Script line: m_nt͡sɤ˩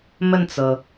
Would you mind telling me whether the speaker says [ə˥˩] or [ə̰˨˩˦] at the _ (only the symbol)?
ə˥˩